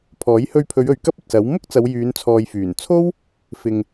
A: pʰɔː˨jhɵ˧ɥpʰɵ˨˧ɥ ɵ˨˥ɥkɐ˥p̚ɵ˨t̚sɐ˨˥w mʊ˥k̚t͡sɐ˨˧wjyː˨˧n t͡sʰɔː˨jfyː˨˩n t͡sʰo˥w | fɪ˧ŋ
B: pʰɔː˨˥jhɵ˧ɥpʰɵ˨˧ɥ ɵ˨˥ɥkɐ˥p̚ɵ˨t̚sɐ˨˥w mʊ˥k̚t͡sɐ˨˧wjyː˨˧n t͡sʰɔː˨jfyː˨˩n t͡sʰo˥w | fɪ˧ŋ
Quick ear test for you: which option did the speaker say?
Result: B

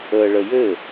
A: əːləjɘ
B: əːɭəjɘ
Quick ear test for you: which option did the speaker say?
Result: B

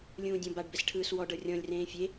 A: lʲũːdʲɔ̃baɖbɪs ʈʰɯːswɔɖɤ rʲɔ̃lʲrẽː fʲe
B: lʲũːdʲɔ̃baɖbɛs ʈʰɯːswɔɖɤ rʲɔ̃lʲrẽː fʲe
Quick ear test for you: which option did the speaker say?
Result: B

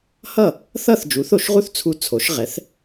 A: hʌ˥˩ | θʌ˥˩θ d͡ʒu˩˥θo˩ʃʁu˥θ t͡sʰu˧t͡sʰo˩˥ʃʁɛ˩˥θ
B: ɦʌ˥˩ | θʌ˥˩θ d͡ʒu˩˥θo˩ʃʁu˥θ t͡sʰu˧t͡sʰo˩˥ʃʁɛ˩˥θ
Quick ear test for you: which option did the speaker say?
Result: A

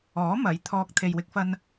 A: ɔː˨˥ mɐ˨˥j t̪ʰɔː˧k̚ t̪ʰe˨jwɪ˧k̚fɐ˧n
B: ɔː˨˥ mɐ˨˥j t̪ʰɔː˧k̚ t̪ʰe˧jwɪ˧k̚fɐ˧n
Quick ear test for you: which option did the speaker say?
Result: A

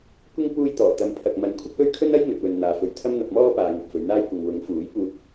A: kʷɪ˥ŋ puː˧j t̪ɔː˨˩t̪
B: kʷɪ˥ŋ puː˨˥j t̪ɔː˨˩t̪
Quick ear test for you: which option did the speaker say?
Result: A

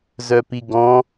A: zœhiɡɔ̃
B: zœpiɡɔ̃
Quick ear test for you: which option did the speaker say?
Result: B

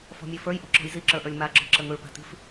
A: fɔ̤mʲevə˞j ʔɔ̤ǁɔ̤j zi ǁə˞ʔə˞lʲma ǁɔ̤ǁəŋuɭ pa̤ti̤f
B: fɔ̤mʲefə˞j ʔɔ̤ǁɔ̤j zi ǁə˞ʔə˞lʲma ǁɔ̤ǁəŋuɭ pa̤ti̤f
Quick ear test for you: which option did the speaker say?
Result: B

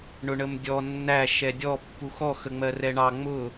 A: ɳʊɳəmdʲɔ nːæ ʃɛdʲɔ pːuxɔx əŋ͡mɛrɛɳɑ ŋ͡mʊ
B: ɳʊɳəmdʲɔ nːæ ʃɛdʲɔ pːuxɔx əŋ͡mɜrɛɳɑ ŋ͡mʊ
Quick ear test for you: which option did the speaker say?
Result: B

